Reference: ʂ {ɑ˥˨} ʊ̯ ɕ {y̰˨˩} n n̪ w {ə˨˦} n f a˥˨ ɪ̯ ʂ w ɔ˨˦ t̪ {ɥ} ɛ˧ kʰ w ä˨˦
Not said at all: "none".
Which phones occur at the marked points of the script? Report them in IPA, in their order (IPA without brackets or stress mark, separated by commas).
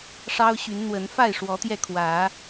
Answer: ɑ˦, y˨˦, ə˨˦, j